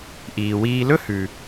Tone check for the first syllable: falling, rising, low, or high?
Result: low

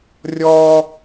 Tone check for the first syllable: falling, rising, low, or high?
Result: high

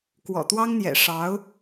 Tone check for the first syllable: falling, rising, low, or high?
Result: low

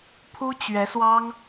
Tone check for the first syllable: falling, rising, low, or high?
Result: high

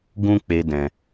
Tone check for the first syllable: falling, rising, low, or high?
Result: high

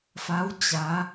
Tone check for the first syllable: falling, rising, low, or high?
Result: rising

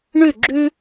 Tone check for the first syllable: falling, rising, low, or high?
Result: falling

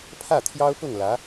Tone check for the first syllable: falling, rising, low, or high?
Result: falling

